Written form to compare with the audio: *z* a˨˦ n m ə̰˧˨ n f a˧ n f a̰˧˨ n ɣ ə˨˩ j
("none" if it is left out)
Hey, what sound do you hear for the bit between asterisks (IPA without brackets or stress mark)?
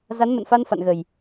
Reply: z